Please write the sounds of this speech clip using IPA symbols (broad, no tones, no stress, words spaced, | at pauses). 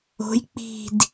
o̤j k͡pi̤d